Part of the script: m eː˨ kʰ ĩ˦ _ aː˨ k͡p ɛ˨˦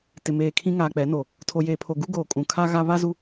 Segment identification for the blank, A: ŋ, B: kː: A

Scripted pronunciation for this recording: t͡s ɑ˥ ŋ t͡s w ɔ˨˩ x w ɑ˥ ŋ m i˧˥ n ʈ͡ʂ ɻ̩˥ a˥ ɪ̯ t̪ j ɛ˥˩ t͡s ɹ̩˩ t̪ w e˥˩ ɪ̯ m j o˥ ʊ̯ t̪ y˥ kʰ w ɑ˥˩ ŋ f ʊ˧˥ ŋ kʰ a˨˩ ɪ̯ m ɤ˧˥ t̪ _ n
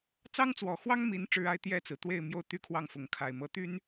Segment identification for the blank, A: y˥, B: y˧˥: A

